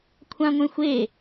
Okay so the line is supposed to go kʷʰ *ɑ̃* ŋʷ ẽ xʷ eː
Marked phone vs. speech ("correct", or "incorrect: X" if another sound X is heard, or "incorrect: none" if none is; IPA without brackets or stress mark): incorrect: ã